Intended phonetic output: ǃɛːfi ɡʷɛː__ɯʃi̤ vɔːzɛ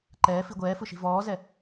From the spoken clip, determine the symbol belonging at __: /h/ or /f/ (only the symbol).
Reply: f